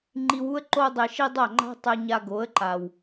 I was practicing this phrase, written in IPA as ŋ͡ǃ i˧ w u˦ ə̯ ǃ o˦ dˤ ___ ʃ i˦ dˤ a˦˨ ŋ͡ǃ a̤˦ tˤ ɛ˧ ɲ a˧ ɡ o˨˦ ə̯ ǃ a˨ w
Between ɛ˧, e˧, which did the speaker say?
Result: e˧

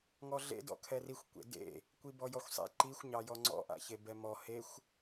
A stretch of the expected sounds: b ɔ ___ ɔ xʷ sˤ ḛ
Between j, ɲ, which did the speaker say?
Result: j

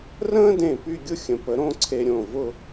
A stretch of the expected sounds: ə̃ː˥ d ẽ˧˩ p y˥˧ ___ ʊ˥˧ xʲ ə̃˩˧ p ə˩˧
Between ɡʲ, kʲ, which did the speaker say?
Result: ɡʲ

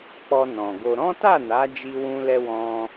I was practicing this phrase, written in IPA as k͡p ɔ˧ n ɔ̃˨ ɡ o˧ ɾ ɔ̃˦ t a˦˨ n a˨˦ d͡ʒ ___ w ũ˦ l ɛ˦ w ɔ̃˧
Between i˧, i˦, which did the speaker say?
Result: i˦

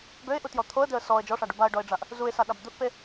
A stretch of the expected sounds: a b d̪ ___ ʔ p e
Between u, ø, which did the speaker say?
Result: u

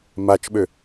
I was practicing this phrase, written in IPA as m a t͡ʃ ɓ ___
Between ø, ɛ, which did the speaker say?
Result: ø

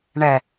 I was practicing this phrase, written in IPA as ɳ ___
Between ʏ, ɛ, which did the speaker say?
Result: ɛ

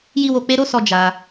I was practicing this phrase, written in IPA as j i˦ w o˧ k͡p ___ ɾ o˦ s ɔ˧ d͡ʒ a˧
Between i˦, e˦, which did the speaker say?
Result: e˦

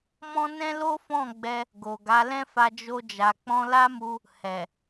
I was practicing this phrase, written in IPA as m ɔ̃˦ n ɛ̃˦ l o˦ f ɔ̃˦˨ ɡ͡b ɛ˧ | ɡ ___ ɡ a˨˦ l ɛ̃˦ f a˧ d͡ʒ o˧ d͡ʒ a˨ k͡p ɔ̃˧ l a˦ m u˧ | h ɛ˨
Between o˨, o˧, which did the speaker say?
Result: o˨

